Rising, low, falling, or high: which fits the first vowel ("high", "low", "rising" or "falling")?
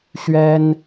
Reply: high